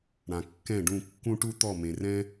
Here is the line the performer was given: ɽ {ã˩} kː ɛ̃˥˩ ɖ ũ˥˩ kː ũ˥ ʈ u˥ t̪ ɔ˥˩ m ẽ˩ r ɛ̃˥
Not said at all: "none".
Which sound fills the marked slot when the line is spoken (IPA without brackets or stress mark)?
ã˩